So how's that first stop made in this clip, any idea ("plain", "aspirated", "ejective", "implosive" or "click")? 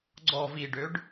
click